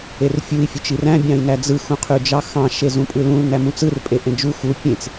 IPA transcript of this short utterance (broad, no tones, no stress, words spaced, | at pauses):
erfʲui̯ fʲøt͡ʃiræ̃ bʲɑ̃i̯næd͡zɯx ũqʰyd͡ʒɑxɑ̃ ʃezũpʼɯlũl næmũt͡sɯr pʼeʔẽd͡ʒu xu pʲẽt͡s